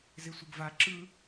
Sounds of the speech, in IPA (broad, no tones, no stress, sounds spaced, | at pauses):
z e sʷ ɯ ɡ v a ǁ ɯ